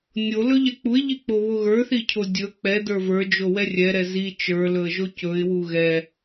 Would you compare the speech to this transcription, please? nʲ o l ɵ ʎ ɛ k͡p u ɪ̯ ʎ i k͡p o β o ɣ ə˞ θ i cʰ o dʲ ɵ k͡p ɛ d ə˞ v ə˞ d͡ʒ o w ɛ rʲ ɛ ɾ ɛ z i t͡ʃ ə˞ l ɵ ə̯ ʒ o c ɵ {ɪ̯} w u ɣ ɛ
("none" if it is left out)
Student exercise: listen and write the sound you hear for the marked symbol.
ɪ̯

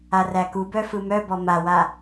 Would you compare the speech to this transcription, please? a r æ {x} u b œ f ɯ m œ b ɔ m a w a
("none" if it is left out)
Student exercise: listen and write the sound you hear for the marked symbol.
k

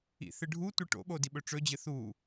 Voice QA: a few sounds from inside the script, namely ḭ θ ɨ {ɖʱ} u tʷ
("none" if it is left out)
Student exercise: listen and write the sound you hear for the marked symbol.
ɖʱ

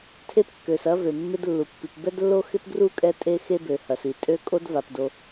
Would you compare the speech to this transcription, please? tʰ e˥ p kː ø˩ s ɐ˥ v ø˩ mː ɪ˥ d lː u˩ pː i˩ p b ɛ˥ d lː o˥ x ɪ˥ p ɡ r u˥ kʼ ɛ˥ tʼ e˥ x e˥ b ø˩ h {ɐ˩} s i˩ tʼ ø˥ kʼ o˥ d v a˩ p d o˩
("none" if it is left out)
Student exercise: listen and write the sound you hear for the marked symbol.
ɐ˩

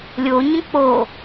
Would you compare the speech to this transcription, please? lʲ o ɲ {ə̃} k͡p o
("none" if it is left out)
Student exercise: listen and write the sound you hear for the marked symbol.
ə̃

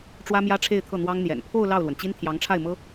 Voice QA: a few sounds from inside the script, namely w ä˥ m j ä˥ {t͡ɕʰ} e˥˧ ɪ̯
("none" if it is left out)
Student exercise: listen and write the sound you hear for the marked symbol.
ʈ͡ʂʰ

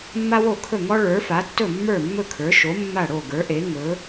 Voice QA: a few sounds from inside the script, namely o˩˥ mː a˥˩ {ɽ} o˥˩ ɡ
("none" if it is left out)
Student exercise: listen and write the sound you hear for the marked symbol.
ɽ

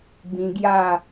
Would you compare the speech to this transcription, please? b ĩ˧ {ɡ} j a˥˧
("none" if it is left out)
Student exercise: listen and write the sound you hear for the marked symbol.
ɡ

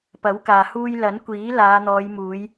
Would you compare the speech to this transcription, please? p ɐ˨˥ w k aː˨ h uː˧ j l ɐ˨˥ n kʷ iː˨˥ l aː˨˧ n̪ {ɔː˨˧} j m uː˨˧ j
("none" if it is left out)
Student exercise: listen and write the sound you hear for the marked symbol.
ɔː˨˧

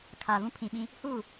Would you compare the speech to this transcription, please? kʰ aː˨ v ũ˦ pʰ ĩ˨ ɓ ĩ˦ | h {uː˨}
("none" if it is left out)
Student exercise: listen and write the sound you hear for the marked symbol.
uː˦˨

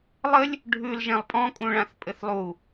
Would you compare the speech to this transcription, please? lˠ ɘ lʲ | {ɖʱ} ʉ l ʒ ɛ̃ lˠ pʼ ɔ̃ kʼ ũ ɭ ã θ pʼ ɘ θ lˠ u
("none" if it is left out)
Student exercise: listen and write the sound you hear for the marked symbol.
ɖʱ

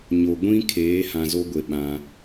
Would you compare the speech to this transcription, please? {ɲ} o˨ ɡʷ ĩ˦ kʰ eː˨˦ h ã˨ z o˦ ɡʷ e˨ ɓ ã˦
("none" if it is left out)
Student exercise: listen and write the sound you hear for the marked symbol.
ɲ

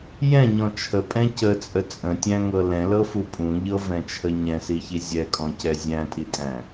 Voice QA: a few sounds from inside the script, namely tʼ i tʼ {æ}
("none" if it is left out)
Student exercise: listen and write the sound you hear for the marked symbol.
æ̃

